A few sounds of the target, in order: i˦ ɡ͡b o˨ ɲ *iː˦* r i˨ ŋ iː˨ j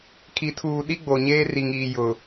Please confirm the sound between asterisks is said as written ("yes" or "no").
no